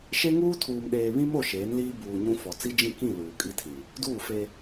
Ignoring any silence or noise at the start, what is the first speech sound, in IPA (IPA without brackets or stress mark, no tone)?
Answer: ʃ